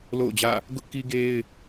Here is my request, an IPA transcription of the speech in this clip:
l o̰˦˨ ʊ̯ d͡ʑ ä̰˦˨ | ɡ ʊ˦ ʔ k i˦ ɡ e˦ ɪ̯

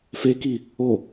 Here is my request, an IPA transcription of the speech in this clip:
f e k i | o

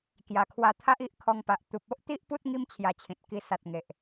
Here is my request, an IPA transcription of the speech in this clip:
k j a˨˩ kʰ w a˧ t̪ʰ a˦ ʔ i˦ ʔ kʰ ɔ˧ ŋ p a˨ ʔ t̪ u˨ p̚ o˦ ʔ t̪ i˦ ʔ p u˦ t̚ ŋ i˦ m t͡ɕʰ j a˧ t͡ɕʰ ĩ˨ t̚ k i˧ s a˨ t̚ ŋ e˨ ʔ

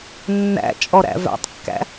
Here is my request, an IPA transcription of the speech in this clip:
nː æ̰ t͡ʃʼ ɔ ɾ æ̰ v æ̰ tˤ kː æ̰

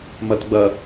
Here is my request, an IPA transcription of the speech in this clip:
m ɐ t ɡ͡b ɐ

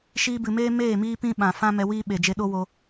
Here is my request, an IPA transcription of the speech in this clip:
ʃ iː˧ b ɨ˨ m eː˦ m eː˦˨ m iː˦ p ĩ˦ ɓ ã˨ f ã˦ m ɛ˧ w iː˦ ɓ e˨ d͡ʒ e˧ ɗ o˦ w o˧

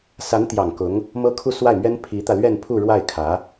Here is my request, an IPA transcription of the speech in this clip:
s a˧˥ n t̪ j ɑ˨˩ ŋ k ʊ˧˥ ŋ | m ɤ˥ kʰ u˥˧ s w a˥˩ ɪ̯ m ɥ ɛ˥ n pʰ i˧˥ t̪ ä˧ l ɥ ɛ˥˧ n pʰ u˥˧ ɻ w a˥˩ ɪ̯ kʰ ä˧˥

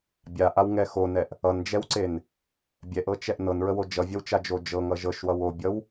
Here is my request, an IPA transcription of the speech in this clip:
bʲ a ʔ a w ŋ ɛ x o n ɛ ʔ | ʌ n d͡ʒ ɛ w ǀ e n | bʲ ɛ ʔ ɤ t͡ʃ ɛ ʔ n ɤ n ɹ ə w o d͡ʒ ʌ vʲ ʌ w t͡ʃ a d͡ʒ o d͡ʒ ɤ ŋ ʌ ʒ ɤ ʃ w ʌ w o bʲ ʌ w

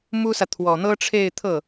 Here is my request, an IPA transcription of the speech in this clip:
m u˥ s ä˨ t̪ʰ w ɔ˨˩ n̪ ɤ˥ ʈ͡ʂʰ e˥˧ ɪ̯ t̪ʰ ɤ˥˩

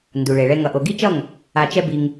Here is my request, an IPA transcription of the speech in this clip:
n d u˨ ɭ e˨ ɭ ɛ˧ ŋ ʌ˨ ʔ o˨ ɡ i˦ t͡ʃ ʌ˦˨ ŋ | a˧ t͡ʃ ɛ˦ b i˧ ŋ

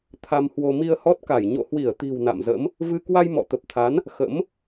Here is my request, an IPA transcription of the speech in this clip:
t̪ʰ a˧ m h w o˧ m i˧ ə̯ h ɔ˦˥ t̚ k a˧˩ j ɲ o̰˧˨ h w i˧˩ ə̯ t̪ i̤˨˩ w n a̰˧˨ m z ə̰˧˥ m | v ɨ˧ k w a˧ j m ɔ̰˧˨ t̪ ə˨˩ p̚ t̪ʰ a˨˦ n | x ə̰˧˥ m

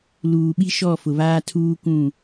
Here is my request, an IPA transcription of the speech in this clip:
l uː˨ ɓ i˦ ʃ ɔ˦˨ f ʊ˨ β aː˦ tʰ uː˦ kʷ ũ˦˨

